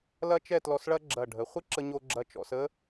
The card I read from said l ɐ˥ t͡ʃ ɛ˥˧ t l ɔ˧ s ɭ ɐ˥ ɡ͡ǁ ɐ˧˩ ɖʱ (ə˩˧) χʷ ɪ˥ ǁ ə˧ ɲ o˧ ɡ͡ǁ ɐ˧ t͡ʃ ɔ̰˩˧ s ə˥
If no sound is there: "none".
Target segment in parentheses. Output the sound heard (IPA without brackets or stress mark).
ə˩˧